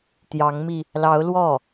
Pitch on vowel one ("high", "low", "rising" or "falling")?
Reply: rising